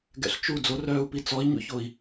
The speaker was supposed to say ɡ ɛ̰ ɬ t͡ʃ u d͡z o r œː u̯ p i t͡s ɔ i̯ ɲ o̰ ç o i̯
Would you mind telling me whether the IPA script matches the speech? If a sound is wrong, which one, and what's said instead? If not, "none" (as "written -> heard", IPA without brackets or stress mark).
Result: none